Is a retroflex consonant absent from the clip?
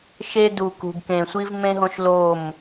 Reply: yes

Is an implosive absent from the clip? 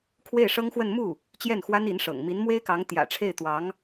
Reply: yes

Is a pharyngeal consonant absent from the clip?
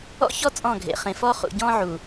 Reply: no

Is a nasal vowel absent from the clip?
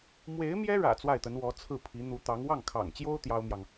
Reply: yes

